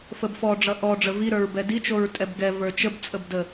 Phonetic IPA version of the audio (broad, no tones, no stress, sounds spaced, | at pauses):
f ə b f ɔ ɖ͡ʐ ʌ ʔ ɔ ɖ͡ʐ ə v i ɾ ə˞ ɹ b ɛ d i t͡ʃ o ɹ tʼ ɛ b ɡ ɛ v ə˞ t͡ʃ ə b t͡sʼ ə b d ə